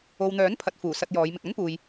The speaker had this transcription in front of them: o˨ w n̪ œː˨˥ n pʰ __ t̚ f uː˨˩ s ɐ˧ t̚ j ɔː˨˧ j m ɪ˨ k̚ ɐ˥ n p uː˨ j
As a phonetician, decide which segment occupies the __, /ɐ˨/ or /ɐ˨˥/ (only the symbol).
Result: ɐ˨